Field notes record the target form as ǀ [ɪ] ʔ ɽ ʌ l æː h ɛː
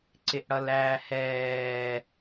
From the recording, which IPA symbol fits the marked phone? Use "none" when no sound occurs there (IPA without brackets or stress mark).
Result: ɪ